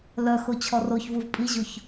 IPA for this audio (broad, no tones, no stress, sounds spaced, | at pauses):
l œ x o t͡ɕʰ ɔ r o ç v u v pʼ i ʑ o ç